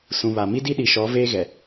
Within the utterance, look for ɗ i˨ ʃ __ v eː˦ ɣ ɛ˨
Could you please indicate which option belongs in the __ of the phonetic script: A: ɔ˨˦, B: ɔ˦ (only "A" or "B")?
A